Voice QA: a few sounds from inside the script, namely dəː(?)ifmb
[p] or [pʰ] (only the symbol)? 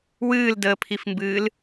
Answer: pʰ